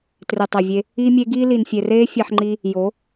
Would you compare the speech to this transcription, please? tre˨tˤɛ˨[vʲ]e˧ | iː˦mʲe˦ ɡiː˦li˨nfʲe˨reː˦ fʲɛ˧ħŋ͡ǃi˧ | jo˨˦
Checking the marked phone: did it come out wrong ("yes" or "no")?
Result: no